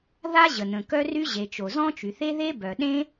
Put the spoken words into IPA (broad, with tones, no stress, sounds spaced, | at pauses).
ð a˥ ʑ ə˩ n̪ ə̃˩ k œ˥ r y˥ ʑ e˩ t͡ʃ o˩ z ɔ̃˥ t͡ʃ y˩ θ e˥ ð e˥ b œ˩ ɗ ẽ˥